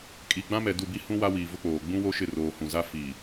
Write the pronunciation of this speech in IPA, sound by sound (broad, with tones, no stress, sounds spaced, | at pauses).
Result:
kʼ i˨ ɡ͡b ã˦ m ɛ˨ d u˦˨ b i˦ h ũ˦ w a˦ w iː˨ v ʊ˦ k͡p oː˨ ɡ͡b ũ˦ w o˦ ʃ ɪ˦˨ r oː˨ h ũ˨ z a˦ f i˨